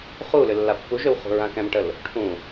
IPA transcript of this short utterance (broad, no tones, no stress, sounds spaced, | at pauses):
χ u l ʏ lː a pː u ʒ ø w χ ṳ ɹ ã k ɛ̃ m ʈ ə l | ʈʰ ũ